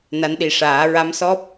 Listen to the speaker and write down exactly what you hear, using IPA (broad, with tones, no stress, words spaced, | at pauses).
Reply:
na˧˥nɗi˨˩ʂaː˨˩˦ ɹa˧˥msɔ˦˥p̚